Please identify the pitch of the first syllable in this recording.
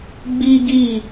high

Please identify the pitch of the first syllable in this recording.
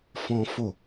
high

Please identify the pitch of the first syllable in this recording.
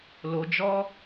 low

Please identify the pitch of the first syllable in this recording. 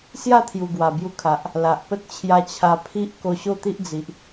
falling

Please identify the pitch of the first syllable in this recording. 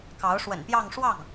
rising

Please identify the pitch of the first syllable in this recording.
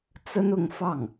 high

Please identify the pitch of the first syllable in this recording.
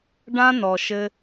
high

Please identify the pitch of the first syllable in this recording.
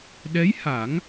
rising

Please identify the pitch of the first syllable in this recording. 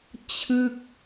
falling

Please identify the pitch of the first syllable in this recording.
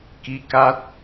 rising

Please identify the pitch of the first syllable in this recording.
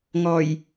low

